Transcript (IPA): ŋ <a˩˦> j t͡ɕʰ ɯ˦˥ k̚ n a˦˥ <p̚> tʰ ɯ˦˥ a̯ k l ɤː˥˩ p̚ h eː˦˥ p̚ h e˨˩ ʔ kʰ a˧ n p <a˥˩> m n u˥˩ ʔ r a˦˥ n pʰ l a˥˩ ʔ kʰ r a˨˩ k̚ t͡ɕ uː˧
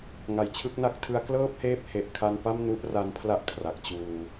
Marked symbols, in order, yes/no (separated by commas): yes, no, yes